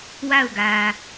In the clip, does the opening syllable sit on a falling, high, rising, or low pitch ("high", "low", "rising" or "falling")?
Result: falling